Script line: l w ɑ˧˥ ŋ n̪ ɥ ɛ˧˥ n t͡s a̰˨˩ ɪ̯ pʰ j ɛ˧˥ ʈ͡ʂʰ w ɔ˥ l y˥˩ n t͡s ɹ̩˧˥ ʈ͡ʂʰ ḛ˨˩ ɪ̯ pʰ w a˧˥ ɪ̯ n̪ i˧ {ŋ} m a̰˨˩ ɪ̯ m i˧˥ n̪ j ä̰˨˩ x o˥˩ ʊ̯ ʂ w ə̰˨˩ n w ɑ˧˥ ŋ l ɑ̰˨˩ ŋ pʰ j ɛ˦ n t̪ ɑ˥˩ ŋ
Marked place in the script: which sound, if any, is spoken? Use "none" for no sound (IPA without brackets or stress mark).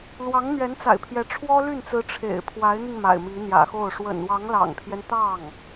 ŋ